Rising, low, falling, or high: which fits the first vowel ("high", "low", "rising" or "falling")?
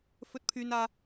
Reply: high